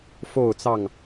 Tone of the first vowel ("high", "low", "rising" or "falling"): falling